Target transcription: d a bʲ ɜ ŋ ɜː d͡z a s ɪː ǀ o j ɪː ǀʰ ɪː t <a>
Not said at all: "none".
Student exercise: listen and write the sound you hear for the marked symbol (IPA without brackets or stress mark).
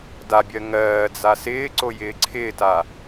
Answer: a